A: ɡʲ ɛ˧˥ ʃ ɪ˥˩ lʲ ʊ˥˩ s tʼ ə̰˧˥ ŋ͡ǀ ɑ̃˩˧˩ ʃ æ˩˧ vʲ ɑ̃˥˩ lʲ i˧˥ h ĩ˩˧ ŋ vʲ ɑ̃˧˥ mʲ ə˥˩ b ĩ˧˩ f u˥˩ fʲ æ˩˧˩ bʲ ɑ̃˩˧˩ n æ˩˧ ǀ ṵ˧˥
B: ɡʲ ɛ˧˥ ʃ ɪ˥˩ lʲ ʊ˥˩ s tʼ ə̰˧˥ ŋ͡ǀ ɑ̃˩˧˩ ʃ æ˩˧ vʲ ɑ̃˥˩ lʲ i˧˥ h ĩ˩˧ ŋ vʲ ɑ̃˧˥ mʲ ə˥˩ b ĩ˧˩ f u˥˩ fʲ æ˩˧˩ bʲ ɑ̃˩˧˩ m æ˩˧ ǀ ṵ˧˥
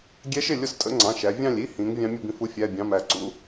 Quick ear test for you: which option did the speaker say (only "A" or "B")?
B